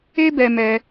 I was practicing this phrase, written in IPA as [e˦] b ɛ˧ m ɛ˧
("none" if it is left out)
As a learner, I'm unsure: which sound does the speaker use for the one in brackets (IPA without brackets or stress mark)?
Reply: e˦